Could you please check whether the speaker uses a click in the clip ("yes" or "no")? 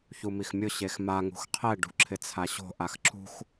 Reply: yes